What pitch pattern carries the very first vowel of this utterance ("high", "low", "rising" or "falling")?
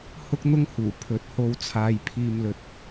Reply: high